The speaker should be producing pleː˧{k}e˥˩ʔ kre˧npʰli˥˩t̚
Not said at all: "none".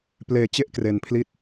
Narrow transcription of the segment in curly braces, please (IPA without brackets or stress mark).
t͡ɕ